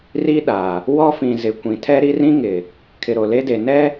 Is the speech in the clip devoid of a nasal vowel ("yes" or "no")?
no